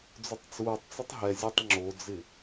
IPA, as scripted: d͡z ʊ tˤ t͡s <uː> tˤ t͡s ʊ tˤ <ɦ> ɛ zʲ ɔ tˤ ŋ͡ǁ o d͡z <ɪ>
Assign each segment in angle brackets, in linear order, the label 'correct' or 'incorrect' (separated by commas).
correct, correct, correct